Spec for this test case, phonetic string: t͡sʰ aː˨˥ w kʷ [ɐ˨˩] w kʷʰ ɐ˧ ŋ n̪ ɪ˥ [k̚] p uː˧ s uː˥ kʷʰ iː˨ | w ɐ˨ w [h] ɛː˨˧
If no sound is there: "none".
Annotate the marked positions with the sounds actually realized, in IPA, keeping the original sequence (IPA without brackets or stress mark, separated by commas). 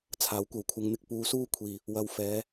ɐ˨, k̚, f